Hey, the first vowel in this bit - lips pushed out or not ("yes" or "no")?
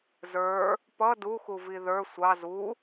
no